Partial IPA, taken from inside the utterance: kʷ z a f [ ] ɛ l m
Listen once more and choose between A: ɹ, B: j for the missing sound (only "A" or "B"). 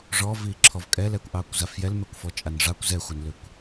B